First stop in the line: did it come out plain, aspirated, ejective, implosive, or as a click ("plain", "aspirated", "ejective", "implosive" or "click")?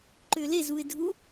click